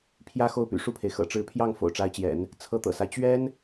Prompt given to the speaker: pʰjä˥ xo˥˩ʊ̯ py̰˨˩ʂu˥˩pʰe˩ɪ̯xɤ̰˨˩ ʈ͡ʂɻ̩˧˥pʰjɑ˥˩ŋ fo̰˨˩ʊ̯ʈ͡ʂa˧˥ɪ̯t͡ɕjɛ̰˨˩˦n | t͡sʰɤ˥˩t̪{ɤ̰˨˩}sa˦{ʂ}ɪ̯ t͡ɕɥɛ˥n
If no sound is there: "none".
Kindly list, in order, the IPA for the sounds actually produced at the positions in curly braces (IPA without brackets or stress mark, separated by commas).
ɤ̰˨˩, none